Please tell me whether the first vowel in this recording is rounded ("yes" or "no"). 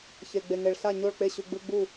no